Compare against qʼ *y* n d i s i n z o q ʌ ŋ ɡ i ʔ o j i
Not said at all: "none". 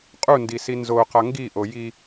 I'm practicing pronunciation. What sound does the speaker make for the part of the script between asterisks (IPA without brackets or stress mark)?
u